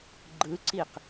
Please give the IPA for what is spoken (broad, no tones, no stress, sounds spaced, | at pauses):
ɡ͡ǃ ɯ ǀ i q